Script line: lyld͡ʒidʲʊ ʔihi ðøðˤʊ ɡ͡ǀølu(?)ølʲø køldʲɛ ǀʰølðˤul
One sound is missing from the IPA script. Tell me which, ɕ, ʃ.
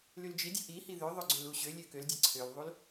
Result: ɕ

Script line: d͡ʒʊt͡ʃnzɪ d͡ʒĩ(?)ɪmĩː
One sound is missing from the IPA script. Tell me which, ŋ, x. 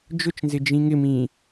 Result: ŋ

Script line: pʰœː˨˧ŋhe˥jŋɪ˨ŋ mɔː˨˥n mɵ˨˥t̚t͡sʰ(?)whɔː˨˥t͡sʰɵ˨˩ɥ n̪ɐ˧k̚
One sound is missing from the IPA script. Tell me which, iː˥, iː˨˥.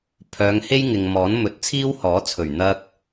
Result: iː˥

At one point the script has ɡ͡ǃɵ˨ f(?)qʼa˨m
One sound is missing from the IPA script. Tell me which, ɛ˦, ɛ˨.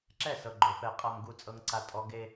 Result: ɛ˨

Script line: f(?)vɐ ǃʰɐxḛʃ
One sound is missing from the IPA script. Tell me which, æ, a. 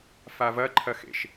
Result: a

